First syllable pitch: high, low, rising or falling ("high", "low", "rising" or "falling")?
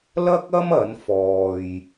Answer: high